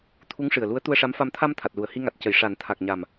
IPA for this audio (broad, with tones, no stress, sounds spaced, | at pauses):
t̪ʰ u˧˥ ŋ ʂ ɨ˨˩ ə̯ l u˧˥ ə̯ t̪ u˧ ə̯ ʂ a˧˥ m f a˧ m t̪ʰ a˧ m t̪ʰ a˨˩ t̚ l u˨˩˨ ə̯ h i˧ ŋ a˨˩ t̚ c ə˨˩˨ j ʂ a˨˩˦ n t̪ʰ a˨˩ k̚ ɲ a˨˩ m